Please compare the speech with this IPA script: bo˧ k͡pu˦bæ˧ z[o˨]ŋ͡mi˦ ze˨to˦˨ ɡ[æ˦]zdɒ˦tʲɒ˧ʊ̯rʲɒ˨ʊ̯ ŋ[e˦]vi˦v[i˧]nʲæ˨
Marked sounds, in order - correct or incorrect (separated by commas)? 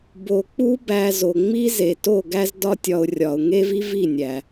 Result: correct, correct, correct, incorrect